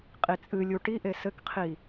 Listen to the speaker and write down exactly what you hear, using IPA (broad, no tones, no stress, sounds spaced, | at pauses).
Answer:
qʼ i t͡sʼ ɨ lʲ u ʈ i ʔ e s ɘ k qʰ i